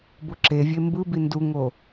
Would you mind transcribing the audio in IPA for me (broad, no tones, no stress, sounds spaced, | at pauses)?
b o ǁ e vʲ e m b ɯ b i n d u ŋ o